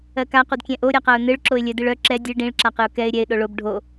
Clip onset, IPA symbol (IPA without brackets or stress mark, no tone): ɜ